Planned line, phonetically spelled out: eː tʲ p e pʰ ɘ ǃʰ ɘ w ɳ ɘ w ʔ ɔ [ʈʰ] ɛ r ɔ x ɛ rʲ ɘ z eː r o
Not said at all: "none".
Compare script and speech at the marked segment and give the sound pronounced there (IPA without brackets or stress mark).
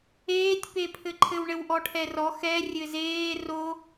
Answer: ʈʰ